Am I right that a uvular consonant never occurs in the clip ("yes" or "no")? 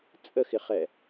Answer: no